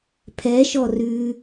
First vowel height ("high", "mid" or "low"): mid